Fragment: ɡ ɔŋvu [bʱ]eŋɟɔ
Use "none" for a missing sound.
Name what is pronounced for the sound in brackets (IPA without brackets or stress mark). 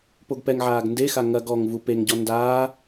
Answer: p